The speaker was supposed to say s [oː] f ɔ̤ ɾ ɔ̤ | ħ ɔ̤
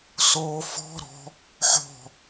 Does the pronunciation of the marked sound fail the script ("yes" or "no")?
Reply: no